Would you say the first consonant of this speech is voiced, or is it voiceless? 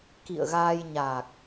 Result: voiceless